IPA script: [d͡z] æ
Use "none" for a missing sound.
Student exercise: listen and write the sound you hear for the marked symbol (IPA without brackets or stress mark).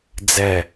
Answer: d͡z